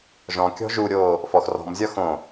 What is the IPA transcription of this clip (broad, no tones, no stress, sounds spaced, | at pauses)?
ʒ ɔ̃ kʲ ɔ̤ ʒ u ɾʲ oː | f ɔ x r ɔ̤ m zʲ ɒ x õ